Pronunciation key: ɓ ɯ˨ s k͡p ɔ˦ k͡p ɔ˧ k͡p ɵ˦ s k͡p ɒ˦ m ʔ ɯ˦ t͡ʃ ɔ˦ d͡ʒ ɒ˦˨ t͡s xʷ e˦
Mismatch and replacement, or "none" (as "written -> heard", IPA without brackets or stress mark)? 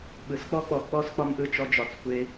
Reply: ɵ˦ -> ɔ˦